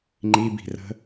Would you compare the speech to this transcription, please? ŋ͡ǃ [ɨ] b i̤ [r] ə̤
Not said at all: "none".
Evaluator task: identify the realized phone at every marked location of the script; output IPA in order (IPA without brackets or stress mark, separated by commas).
i, r